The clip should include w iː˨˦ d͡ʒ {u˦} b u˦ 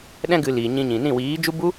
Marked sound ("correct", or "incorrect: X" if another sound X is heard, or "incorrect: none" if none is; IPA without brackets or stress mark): correct